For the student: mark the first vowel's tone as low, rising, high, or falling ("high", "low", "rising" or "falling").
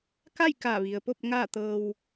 falling